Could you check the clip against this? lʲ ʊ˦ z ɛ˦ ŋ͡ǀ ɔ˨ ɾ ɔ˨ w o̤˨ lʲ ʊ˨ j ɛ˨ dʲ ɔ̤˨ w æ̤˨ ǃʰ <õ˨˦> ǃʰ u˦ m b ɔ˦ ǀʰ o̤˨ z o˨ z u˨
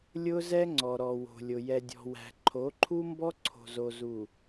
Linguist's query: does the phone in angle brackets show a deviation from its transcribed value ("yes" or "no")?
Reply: yes